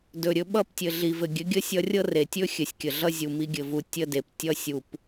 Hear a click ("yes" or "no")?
no